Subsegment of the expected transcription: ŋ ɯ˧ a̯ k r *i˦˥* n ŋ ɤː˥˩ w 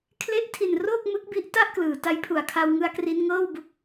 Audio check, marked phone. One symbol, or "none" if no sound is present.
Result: i˧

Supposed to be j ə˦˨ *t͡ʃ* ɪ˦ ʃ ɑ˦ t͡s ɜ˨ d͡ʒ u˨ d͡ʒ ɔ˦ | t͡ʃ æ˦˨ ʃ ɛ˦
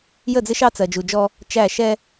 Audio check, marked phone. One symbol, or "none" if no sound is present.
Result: d͡z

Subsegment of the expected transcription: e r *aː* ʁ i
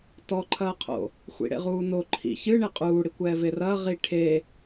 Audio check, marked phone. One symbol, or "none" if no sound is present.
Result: ɐː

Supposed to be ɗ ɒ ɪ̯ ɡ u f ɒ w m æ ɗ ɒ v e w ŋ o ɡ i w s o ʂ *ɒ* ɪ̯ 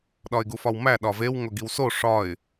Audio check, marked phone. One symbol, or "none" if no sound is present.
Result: ɒ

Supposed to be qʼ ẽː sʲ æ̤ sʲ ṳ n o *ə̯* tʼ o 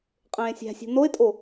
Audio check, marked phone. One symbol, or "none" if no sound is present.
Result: ɪ̯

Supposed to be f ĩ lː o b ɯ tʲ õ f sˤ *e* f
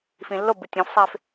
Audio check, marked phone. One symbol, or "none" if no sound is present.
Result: e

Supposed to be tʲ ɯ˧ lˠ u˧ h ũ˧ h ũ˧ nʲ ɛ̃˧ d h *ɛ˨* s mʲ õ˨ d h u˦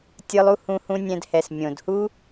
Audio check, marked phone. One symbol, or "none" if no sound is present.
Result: ɛ˨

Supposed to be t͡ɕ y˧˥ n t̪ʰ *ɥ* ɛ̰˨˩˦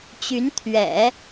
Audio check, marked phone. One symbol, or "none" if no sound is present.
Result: ɥ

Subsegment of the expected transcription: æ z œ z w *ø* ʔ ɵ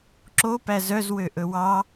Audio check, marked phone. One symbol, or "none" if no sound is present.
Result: ø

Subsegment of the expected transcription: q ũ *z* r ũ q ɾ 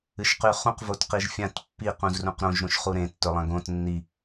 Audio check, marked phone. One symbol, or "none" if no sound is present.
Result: z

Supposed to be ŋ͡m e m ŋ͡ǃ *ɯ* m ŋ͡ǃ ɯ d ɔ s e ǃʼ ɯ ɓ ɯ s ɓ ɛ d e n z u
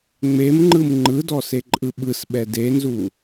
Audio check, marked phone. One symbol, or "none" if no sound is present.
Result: ɯ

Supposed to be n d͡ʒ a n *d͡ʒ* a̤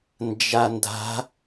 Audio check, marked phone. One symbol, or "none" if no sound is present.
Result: d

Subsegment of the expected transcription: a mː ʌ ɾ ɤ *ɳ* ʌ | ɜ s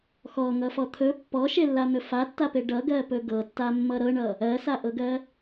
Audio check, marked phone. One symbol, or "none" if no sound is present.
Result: ɳ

